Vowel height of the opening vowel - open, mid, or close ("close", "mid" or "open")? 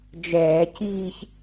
mid